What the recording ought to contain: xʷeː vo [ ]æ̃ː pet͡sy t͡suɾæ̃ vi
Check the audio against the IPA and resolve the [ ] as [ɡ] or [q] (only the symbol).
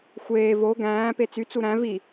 ɡ